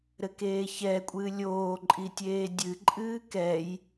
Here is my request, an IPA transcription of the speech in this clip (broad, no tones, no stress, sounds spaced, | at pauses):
ɾ ɘ k eː ç ɛ kʷʼ ɨː lʲ oː ǃʼ i tʲ eː dʲ ɨ ǃʼ ɨː k ɛ j